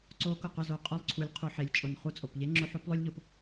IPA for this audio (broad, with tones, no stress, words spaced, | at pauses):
ǀo˧˥kʊ˩qʊ˧ zo˩qʼʊ˧˥lˠǀʰu˩˧lʲ qʰu˩ħe˩˧lʲ t͡ʃʼʊ˩nχu˧t͡sʼo˩pʎe˧˥ ŋ͡ǁʊ˧˥ħo˧˥plˠo˥lʲ ʎo˧p